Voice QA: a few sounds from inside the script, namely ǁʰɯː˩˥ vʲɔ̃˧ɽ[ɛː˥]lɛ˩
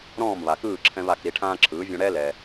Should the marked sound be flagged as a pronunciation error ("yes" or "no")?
no